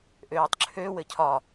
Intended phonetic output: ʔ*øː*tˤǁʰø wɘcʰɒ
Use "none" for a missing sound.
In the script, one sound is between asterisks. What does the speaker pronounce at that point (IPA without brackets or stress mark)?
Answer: øː